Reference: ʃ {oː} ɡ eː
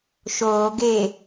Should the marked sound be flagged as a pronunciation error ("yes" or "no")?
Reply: no